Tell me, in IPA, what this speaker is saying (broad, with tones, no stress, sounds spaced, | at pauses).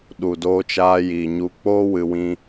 ɗ u˨ d oː˧ t͡ʃ aː˧ j iː˨ ɲ u˧ k͡p oː˦ w ɨ˧ w ĩ˧